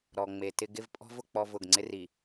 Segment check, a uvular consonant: absent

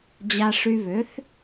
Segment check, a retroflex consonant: present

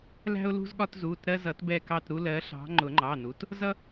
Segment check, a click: present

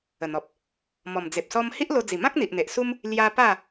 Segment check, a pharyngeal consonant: absent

